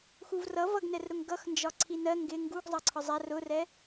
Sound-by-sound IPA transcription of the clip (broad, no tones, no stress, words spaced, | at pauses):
xuvrʌ vʌɡnɛrɾʊŋ ɡʌxnd͡ʒɒ ǀʰinɜ ŋɡɪ ŋɡuɡ zˤɑǀʰɒzˤær ʊrɛ